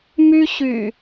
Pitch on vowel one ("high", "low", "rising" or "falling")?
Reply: high